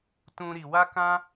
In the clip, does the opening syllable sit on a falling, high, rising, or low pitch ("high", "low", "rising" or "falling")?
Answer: high